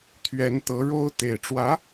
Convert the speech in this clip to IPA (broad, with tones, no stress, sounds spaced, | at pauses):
t̪ʰ ɥ ɛ˧˥ n t̪ ɤ˧˥ ɻ o˥ ʊ̯ t̪ e˨˩ ɪ̯ ʈ͡ʂ w ä˧˥